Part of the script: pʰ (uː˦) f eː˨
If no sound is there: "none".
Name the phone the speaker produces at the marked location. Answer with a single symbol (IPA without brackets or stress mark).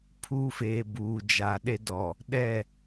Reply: uː˦